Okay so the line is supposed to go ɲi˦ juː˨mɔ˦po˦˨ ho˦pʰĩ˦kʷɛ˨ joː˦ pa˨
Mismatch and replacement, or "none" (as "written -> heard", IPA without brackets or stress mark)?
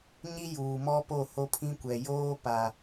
none